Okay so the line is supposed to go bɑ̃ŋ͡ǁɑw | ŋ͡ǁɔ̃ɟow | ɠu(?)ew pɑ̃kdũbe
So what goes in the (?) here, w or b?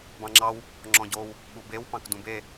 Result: b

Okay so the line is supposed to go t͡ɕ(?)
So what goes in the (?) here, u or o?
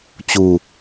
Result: u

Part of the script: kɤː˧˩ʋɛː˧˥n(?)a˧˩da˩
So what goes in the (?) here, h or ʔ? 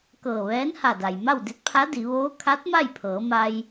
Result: h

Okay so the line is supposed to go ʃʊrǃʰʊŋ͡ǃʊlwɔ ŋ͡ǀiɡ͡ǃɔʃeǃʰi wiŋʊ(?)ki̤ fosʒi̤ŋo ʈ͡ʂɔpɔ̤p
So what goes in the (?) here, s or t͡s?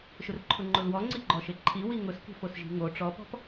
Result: s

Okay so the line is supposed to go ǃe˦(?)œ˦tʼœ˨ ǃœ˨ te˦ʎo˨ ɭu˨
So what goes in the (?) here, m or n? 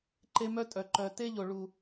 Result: m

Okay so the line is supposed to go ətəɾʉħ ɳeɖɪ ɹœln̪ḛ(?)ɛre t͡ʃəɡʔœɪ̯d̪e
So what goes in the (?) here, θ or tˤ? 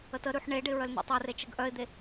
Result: tˤ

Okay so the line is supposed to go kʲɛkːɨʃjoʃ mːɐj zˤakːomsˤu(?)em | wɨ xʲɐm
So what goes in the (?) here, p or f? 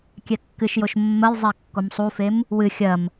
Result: f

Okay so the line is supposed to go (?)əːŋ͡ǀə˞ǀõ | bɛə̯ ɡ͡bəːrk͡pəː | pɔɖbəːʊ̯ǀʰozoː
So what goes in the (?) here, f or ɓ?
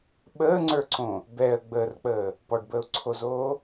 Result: ɓ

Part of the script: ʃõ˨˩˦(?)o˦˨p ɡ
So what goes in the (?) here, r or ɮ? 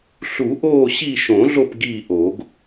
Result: ɮ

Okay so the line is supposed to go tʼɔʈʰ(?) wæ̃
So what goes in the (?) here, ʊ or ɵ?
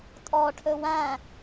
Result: ɵ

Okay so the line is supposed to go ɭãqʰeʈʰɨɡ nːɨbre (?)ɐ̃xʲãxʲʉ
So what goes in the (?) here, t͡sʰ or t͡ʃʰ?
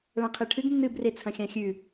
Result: t͡sʰ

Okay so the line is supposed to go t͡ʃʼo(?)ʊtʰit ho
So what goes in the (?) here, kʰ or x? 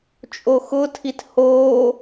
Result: x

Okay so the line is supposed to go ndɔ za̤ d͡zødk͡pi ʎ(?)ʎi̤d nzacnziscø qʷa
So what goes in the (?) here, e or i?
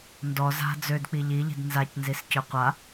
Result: i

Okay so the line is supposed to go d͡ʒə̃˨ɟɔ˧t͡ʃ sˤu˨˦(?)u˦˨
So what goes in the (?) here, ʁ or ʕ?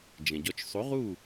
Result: ʁ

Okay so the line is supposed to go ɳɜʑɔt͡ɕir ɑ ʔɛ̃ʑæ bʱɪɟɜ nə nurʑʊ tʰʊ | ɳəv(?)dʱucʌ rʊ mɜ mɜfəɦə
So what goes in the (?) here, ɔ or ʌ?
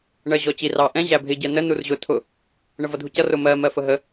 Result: ʌ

